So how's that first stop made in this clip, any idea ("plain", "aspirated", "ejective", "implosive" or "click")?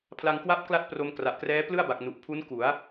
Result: aspirated